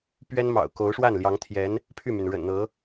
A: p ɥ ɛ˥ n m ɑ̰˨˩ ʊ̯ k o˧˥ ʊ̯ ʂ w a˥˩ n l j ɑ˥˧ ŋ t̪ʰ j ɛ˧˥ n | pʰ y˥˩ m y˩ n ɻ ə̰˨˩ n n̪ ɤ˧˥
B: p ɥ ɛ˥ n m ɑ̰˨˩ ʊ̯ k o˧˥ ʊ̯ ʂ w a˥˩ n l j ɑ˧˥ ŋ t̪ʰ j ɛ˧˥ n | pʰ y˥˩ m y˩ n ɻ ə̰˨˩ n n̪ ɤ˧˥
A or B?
B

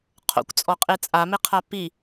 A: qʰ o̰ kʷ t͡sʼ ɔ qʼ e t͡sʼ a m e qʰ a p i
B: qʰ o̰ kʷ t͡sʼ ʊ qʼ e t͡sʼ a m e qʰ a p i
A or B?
A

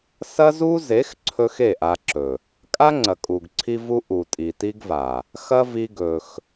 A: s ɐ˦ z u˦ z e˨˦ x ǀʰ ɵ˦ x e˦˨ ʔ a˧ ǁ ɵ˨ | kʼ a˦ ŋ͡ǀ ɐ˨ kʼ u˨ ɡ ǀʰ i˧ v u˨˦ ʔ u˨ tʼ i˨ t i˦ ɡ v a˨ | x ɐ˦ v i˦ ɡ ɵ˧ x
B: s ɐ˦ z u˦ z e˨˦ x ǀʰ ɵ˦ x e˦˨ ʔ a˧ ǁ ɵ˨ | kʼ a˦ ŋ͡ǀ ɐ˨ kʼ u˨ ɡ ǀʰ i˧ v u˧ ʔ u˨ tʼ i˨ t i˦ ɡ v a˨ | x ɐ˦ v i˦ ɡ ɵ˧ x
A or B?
B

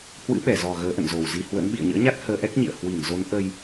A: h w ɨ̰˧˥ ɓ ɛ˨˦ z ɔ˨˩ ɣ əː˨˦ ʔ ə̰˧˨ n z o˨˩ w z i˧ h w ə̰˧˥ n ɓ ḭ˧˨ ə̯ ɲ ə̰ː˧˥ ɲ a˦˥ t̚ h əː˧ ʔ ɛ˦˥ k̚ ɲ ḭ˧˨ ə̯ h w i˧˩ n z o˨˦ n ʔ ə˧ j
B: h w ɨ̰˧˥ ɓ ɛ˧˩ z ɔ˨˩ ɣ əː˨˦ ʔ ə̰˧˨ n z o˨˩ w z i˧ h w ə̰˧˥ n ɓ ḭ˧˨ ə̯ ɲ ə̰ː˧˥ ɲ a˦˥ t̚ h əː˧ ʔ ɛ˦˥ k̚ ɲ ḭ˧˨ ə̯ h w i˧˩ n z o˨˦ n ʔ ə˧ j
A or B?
B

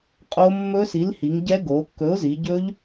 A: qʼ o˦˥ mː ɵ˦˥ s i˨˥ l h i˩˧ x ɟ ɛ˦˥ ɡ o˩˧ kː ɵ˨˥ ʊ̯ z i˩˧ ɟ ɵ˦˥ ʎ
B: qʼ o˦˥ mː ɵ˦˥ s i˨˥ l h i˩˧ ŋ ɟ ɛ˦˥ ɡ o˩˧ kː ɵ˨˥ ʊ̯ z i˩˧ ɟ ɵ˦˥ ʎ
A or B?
B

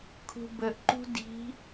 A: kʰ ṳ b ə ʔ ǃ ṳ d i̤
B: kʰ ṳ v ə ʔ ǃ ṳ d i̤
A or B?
A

